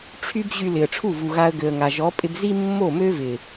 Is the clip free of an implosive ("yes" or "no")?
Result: yes